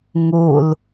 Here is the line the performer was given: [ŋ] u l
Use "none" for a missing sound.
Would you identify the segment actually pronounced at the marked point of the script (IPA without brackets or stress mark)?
ŋ